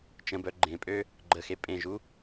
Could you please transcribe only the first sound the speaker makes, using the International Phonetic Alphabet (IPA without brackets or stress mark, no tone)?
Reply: t͡ʃ